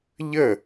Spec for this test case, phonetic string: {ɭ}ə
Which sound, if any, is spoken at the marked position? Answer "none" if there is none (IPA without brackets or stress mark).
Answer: ʎ